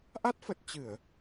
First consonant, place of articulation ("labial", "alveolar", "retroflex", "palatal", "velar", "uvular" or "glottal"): glottal